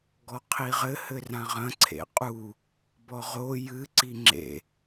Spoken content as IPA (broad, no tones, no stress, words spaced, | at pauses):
ɡɔqʰiʁɘ hɘrãʁɐ̃ ǀʰḛqʼu | bɔʁo jɨ ǀiŋ͡ǁḛ